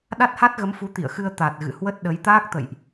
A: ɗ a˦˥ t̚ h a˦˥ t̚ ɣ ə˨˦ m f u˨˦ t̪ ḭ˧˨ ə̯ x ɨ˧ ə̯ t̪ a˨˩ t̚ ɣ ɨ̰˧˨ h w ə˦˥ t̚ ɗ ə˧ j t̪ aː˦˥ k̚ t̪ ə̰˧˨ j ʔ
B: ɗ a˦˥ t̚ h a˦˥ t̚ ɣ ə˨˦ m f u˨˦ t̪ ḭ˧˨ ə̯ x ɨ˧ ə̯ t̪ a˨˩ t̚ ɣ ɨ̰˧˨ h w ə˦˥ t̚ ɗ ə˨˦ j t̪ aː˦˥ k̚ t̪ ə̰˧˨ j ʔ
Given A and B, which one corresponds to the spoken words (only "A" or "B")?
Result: B